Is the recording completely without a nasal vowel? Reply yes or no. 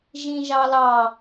no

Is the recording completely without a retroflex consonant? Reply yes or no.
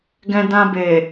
yes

